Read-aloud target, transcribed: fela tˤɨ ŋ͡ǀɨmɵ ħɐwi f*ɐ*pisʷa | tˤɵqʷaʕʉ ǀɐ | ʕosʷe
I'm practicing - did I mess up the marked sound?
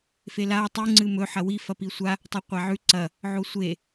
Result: no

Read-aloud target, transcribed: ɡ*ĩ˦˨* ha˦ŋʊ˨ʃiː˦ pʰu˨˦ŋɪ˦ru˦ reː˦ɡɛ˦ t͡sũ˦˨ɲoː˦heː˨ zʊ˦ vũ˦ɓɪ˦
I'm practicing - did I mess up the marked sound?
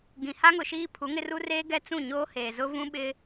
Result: yes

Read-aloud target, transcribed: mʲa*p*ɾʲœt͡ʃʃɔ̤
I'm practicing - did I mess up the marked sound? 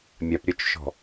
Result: no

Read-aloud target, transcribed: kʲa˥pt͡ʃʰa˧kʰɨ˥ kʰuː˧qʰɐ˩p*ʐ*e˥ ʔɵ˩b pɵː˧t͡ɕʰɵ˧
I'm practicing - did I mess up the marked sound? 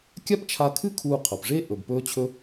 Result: no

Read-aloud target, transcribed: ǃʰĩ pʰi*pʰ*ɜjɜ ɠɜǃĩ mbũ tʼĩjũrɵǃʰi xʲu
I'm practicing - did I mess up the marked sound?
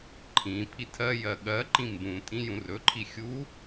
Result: yes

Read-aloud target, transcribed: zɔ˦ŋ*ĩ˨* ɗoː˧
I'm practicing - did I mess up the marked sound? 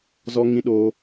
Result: yes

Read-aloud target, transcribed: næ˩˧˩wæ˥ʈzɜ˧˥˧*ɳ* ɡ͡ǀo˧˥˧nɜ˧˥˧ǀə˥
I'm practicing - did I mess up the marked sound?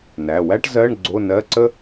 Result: no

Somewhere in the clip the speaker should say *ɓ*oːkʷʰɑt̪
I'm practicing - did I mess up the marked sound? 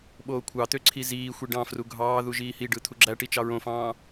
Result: no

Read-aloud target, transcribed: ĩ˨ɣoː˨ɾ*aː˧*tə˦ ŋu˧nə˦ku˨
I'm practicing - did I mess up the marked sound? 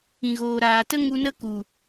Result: yes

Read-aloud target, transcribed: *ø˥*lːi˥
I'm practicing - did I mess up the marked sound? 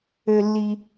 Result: no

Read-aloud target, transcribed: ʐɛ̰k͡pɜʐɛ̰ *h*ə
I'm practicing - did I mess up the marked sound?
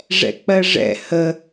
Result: no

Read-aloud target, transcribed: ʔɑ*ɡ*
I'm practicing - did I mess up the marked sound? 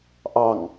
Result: yes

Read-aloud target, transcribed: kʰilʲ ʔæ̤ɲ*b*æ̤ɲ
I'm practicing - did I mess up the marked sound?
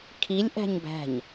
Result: no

